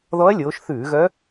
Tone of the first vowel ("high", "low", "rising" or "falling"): rising